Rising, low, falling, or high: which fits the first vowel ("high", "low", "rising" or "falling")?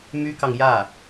high